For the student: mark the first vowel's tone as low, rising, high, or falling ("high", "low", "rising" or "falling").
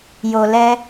low